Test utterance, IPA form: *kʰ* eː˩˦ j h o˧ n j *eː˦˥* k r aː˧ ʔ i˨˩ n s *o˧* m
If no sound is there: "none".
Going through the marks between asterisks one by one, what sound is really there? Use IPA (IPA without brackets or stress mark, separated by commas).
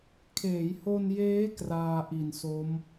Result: kʰ, eː˦˥, o˦˥